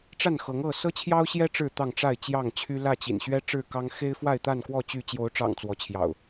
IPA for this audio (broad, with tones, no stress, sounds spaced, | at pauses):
ʈ͡ʂ a˥˨ n x ɤ˨˦ ŋ ɤ˥˨ s ɤ˦ t͡ɕʰ j ɑ˦ ʊ̯ ɕ j ɛ˦ ʈ͡ʂ ɻ̩˥˨ t̪ ɑ˥˨ ŋ ʈ͡ʂ a˥˨ ɪ̯ t͡ɕ j ɑ˥˨ ŋ t͡ɕʰ y˦ l ä˥˨ t͡ɕ ḭ˨˩ n ɕ ɥ ɛ˦ ʈ͡ʂ ɻ̩˥˨ k ɑ˦ ŋ x e˦ ɪ̯ f w a˥˨ ɪ̯ t̪ a˥˨ n k w ɔ˥˨ t͡ɕ y˥˨ t͡ɕ j o˨˦ ʊ̯ ʈ͡ʂ ɑ̰˨˩ ŋ t͡s w ɔ˨˦ t͡ɕʰ j ɑ̰˨˩ ʊ̯